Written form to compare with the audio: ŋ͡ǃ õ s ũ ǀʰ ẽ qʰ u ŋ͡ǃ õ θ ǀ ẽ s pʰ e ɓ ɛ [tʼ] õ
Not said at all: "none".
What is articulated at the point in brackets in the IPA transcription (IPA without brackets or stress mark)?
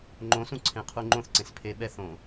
θ